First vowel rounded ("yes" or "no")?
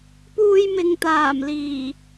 yes